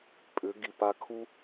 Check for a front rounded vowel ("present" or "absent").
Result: present